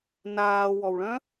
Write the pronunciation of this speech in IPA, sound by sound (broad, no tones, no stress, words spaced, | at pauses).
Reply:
naːwɔwɭœ̃